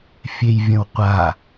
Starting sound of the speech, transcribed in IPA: fʲ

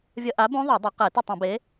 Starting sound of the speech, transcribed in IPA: vʲ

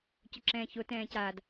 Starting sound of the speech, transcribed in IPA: c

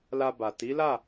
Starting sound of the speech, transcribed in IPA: l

